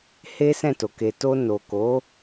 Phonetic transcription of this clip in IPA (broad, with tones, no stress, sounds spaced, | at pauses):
h e˦ s ɛ̃˦˨ t o˨ k e˧ t o˧ n o˨ k o˨˦